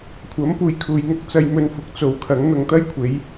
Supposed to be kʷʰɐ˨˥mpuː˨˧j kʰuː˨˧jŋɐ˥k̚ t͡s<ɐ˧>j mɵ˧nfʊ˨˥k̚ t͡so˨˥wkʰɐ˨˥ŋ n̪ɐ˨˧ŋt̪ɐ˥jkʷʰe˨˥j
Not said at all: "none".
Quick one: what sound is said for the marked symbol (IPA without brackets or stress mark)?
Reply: ɐ˧